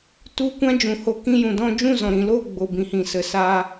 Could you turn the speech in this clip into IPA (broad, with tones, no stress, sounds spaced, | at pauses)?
t u˦˨ kʷ ã˦ d͡ʒ ũ˨ h o˧ k ĩ˦ j ũ˨ d ɔ̃˦ d͡ʒ ũ˦˨ z ɔ̃˨ ɾ ĩ˨ l oː˦˨ ɡ͡b o˨ b ĩ˨ h ĩ˨ s ə˨ s aː˦